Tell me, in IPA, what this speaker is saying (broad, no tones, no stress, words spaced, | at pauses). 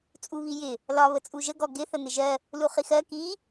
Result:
t͡sʼuβijɪ | lɒ βət͡sʼuʒə ɡɔɡɪ θən̪ɪʒɜ | luχixɜ ki